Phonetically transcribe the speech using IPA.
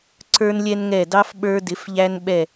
ǀ ə˞˥ n lʲ ɛ˥ n ŋ ɛ˧˩ d ɑ˥ f ɓ ə˞˧ d ɪ˩˧ f ʎ æ˧ n ɓ ɛ˧˩

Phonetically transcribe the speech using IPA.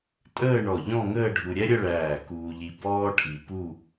tʼ əː˥˧ ɳ ɔ˧˩ ʎ ɔ̃˥˧ ŋ əː˥˧ ɖʱ u˧ ɾʲ ɛ˥ ɾʲ ə˥˧ ɭ æː˧˩ k uː˧ ʎ i˧ b ɔː˥ ʈʰ i˧ p u˥˧

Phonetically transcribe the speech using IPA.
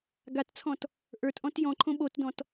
ɡ a t t͡sʰ ɔ̃ t | ʔ ə˞ t ʔ ɔ̃ t j ɔ̃ ǃʰ õ ɓ o t d ɔ̃ t

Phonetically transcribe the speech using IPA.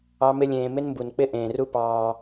ɑ˦ m ɪ˦ lʲ ẽː˧ m ɪ˦ n m b u˨ n k͡p ɪ˦ ʔ ẽː˨ r u˦ p ɑː˧

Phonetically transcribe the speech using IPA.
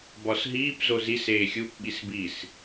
b ɒ s ɦ iː p z o z i s eː xʲ u p ɓ i s b i s

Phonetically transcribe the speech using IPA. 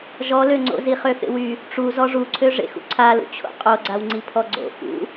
ʒ ɔ l ø ŋ͡ǀ o̰ z i χ ø f ḛ w y | ʈ͡ʂ u z ɔ ʐ u ǀʰ ø ʐ ḛ x ṵ ǀʰ a l ṵ t͡ɕʰ o̰ qʼ o ɡ͡ǀ a w ŋ͡ǀ i pʰ ɔ ɡ͡ǀ o̰ f ṵ

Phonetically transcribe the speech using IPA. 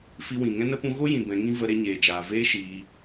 f i˧ w ĩ˨ ŋ ɛ̃˦ n ə˦ p ũ˧ ɣ o˦ j ĩ˨ b ɛ̃˧ ŋ ĩ˦ v ə˧ ɾ e˧ ɲ eː˨ d͡ʒ aː˨ v eː˧ ʃ iː˧

